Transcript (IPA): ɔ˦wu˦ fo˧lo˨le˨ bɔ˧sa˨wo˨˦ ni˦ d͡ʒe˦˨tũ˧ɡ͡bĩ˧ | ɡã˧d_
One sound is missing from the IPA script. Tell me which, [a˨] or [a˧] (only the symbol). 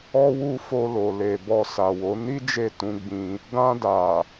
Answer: a˨